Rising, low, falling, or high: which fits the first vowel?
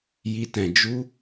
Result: high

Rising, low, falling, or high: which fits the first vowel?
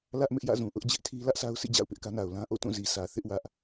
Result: high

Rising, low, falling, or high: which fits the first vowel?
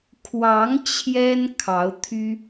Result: rising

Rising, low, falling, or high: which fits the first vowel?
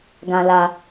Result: low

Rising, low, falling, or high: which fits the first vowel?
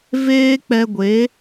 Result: high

